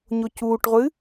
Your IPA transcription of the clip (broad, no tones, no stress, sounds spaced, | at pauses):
ɲ o c uː ʈ ʁʷ ɨ